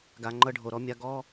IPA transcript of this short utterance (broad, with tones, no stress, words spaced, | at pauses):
ɡa˨ŋ͡ǃɤ˧ɖʱo˨ ɾɔ˨˦mʲa˧ ɡɔ˦